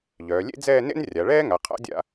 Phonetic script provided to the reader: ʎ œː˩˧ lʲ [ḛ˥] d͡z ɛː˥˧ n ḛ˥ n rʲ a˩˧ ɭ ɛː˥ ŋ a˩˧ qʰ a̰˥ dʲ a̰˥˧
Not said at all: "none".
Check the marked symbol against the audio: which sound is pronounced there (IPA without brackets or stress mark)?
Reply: ḛ˥